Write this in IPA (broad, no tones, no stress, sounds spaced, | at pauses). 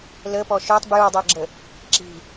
l ə p ɔ ʃ œ tˤ b j u dˤ ɜ ɡ͡ǁ ə | ǁ i̤